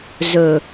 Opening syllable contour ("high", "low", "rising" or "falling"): low